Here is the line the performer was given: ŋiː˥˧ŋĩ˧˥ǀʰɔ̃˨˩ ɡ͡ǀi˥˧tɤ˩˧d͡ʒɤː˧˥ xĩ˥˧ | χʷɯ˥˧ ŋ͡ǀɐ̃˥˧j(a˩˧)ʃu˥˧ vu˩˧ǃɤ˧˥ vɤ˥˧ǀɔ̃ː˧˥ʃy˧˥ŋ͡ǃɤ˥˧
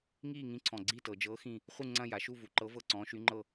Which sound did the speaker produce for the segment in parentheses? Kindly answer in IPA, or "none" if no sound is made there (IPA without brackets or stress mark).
a˩˧